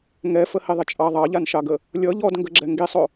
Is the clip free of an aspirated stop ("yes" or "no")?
yes